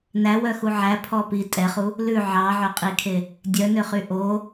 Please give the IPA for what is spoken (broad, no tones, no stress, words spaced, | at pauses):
næwœxu ʕæpʰɔ pi tʼɛχu | lʉ ʕɑʕœqʼikʰe | dʲœnøχy ʔo